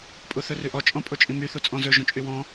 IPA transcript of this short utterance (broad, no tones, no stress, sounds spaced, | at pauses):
pʼ u θ ɵ r ʉ ʔ ɔ t͡ʃʼ ɔ̃ pʼ o t͡ʃʼ ĩ m y θ u t͡sʼ ɔ̃ z ɵ ʒ õ t͡ʃʼ y w ɔ̃